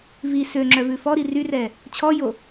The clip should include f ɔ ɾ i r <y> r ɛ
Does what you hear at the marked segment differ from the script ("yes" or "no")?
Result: no